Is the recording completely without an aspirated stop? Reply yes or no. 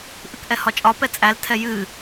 no